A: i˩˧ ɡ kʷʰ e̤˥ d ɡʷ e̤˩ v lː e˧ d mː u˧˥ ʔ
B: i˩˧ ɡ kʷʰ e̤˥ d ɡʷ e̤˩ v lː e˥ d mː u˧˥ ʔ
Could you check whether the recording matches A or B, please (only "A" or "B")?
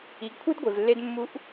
A